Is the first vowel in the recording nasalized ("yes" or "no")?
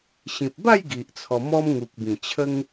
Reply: yes